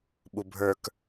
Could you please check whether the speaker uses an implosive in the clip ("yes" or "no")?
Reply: yes